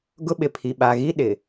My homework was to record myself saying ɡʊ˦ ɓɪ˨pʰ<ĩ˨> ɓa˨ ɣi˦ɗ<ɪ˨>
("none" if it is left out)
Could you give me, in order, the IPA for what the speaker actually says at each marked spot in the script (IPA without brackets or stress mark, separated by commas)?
i˨, ɪ˨